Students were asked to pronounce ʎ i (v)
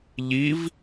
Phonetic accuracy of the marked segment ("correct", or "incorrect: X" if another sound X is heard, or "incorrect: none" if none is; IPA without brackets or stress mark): correct